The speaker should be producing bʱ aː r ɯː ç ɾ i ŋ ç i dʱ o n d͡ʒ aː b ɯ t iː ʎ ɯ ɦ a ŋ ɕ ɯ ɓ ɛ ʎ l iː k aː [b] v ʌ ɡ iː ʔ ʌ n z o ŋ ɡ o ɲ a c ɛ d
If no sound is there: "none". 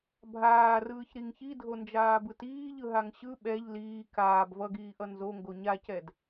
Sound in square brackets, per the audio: b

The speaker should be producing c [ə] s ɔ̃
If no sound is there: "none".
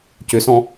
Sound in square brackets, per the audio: ʏ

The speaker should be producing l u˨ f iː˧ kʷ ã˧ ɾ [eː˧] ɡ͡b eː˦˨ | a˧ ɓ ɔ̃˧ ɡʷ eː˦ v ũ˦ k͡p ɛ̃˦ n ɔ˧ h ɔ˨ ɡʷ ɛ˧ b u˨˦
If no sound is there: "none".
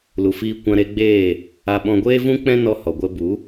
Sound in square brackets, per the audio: e˧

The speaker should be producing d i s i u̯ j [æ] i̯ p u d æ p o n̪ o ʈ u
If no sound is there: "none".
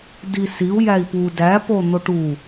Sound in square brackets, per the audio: æ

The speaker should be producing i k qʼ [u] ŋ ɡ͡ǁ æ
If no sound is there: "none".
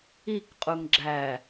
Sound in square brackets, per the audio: u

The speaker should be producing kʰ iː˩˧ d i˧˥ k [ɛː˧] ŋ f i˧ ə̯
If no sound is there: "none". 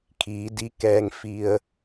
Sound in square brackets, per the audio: ɛː˧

